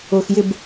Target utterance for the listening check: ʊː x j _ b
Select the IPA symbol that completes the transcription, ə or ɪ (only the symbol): ɪ